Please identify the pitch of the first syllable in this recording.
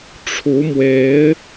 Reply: rising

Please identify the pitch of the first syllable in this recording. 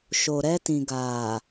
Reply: low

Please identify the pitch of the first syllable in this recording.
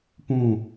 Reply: falling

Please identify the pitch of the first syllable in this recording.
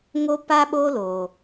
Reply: high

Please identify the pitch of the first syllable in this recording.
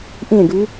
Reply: falling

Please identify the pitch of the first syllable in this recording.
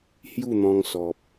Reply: falling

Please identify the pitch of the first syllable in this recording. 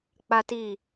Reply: high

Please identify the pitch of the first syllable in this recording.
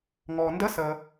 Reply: low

